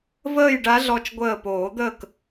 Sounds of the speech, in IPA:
v əː˥˨ j ɖ a˧˥ ɮ ɔ˧˩ t͡ʃ ɡʷ əː˧˩ p oː˨˩˦ d̪ əː˥˨ k

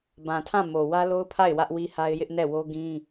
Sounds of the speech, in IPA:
b ã˨ tʰ ã˦˨ m o˨ w ä˦ l o˦ ʊ̯ pʰ a˦˨ ɪ̯ w ä˦ ʔ w i˦ h a˦ ɪ̯ j ɪ˦ ʔ n ɛ˦˨ w o˦ ɡ ĩ˦

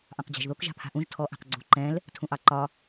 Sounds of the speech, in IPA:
ʔ ɑ̃ q d͡ʑ a̤ ʒ ð o k ʒ a̤ pʰ a̤ ʔ ũ ʒ tʰ ɔ ʔ a̤ q ɡ͡ǀ ṳ ǃ ɛ̃ l | tʰ ũ ʔ ɑ ǃ ɒ

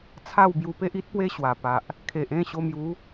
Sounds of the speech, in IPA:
t͡sʰ a˥˧ w b j u˧ p e˦ ʔ i˦ t̚ p w e˦ ɕ w a˨˩ p a˨ ʔ | kʰ e˨ ʔ ẽ˥˧ ɕ o˧ m j u˨˦

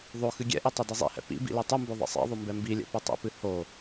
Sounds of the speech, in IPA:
ðˤ o x ɨ ɡʲ ɛ̰ ʔ i tˤ o d i zˤ ḭ h ɛ̰ p ḭ b ḭ l i tˤ ɨ m b o ðˤ ḭ sˤ ɛ̰ ðˤ o m b ɛ m b i lʲ ɛ̰ p ɨ tˤ ḭ p ɨ h o

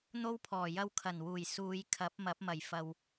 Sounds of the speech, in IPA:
n̪ o˥ w pʰ ɔː˨˩ j ɐ˧ w kʰ ɐ˨˩ n w uː˨˩ j s uː˨˧ j kʰ ɐ˨˥ p̚ m ɐ˨˥ p̚ m ɐ˨˩ j f ɐ˨ w

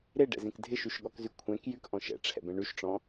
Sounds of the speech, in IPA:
ɾ e ɖ ɛ̰ z ẽ k dʱ ɪ ʃ y ʃ ɠ ɔ k z y kʷʰ ɛ̃ k j y k ʔ ɔ̃ ʃ ɛ̰ ʈ͡ʂʰ ɛ̰ b ɛ̃ ɳ y ʃ ʈ͡ʂ ɔ̃

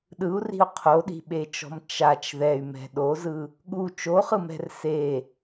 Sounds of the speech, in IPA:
ɗ ɯ u̯ r i̤ u̯ qʰ o ɗ i̤ ɓ e t͡ʃ ɔ̤ m t͡ʃ a t͡ʃ ð ɛ y̯ m ɛ̤ ɗ o z ɯ | ɠ u t͡ʃ o χ ɯ m ɛ̤ r s e

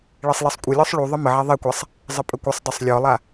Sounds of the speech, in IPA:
ɭ e sˤ l e sˤ kʷʼ ə lʲ ɔ sˤ ɭ u ðˤ ə m ə ʕ a ðˤ e kʷ a sˤ | zˤ ə pʼ ə kʷ ə sˤ dˤ u sˤ lʲ ɔ lˠ a

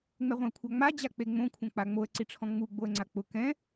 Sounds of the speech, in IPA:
ŋ͡m ɛ ʁʷ ɛ̃ ə̯ kʷʰ a ŋ͡m a d͡ʑ a k͡p e ŋ͡m õ kʷʰ ã k͡p a ŋ͡m o ə̯ ǀ i ʈ͡ʂʰ ɔ̃ ŋ͡m u ɡ͡b o ə̯ ŋ͡ǀ a k͡p ʊ k ɛ̃

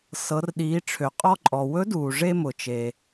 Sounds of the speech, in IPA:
s ɤ˩˧ r ɗ iː˩˧ ʈ͡ʂʰ ø˩ qʼ ɔ˧ ǃʼ ɔ˩ w ɵ˧˥ d uː˩ ʐ e˧ m ʊː˩ t͡ʃ e˩

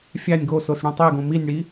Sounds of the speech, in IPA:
fʲ æ nʲ ɡ o s o s ɽ ũ tˤ e ɡ õ m i nʲ ɽ i

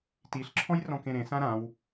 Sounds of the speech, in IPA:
t i ɬ ǁʰ ɔ̃ j r ɔ̃ k ẽ ɾ ẽ s ã ɾ ã w

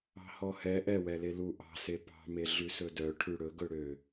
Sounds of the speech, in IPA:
ɑ̤ h ɔ h ɛ ʔ ɛ w ɛ l e l u ʔ ɑ̤ s e p ɑ̤ m e ɮ ʉ s ɵ d œ ʈʰ ʉ ɽ ɵ ɡ ɵ ɽ ø

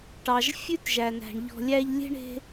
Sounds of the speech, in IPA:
ʈ ɑ˩ ʒ fʲ ʉ˦ t ʒ æ˩ n æ̤˩ ɳ ʎ ɔ̤˨ lʲ æ˦ ʎ lʲ e̤˥ ɳ e̤˦

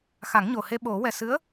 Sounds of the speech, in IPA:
x a˨˩˦ ŋ ɲ o˨˩ h e˧ ɓ o˨˩˦ w ɛ˨˩ s ɨ˧˥ ə̯

